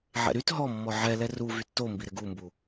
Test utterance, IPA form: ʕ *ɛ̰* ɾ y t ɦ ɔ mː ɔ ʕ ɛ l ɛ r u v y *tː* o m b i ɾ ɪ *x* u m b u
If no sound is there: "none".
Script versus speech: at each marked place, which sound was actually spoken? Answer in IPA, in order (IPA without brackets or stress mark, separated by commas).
ɛ̰, tː, ɡ